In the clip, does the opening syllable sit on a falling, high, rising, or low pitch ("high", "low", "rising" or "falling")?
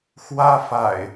high